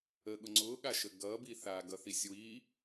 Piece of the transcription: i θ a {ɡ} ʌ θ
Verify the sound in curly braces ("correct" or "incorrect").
correct